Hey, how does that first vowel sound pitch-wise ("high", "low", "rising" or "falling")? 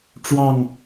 falling